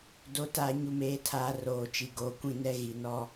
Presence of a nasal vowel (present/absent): present